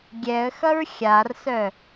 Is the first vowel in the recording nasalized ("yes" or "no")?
no